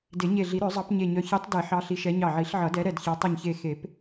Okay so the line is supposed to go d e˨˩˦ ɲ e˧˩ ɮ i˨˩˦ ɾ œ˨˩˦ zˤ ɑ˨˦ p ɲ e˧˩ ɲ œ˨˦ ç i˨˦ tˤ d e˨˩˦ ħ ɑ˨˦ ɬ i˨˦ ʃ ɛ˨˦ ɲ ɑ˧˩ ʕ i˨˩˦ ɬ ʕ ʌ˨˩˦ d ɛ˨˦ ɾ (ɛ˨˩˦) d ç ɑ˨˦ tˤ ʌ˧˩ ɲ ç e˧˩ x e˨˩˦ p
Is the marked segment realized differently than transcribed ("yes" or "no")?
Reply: yes